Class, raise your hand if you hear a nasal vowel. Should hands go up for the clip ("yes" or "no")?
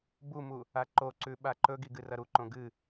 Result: yes